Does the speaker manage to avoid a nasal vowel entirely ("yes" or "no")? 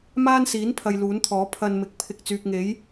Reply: yes